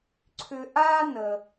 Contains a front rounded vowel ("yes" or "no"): yes